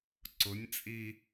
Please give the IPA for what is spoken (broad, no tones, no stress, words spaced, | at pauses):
ǀʊnʲt͡sʼi